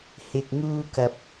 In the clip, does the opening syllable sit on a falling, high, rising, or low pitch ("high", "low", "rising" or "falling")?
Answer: low